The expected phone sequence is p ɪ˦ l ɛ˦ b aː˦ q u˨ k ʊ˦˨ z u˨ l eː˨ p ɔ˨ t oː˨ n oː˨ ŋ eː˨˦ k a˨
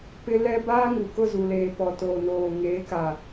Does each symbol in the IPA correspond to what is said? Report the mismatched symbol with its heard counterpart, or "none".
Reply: q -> ŋ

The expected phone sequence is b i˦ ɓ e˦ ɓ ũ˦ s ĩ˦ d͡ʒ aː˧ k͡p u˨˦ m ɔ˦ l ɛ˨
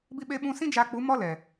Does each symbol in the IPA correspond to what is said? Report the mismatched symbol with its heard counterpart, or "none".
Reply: none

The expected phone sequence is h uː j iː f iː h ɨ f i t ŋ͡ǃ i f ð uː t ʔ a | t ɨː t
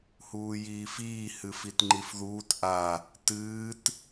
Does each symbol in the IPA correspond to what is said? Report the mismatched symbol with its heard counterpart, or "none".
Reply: none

